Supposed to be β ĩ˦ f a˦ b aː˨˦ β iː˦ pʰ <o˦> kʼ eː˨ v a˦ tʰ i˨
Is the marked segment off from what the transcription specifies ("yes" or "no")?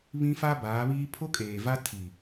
no